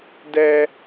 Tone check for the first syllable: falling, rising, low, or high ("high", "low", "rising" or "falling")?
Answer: high